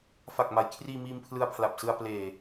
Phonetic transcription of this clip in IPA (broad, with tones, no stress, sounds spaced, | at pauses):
f a˨˩ k̚ m a˩˦ j kʰ r iː˧ m iː˧ m pʰ l ɯ˧ a̯ pʰ l a˨˩ p̚ s ɯ˧ a̯ p l eː˨˩